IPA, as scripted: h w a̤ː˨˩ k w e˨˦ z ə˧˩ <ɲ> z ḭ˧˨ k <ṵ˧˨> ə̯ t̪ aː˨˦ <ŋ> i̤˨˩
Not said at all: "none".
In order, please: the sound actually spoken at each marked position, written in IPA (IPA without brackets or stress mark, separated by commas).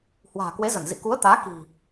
n, u˨˦, k